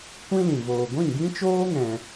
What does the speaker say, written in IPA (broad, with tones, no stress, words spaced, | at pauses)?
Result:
kʷĩ˦lĩ˨ voː˨ɡʷĩ˦˨ɡĩ˦t͡ʃoː˦ ŋɛ̃˧